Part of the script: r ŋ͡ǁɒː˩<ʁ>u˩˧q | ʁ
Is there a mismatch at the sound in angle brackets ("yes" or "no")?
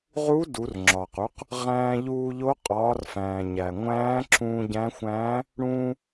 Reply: yes